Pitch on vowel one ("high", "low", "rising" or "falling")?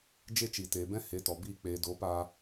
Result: high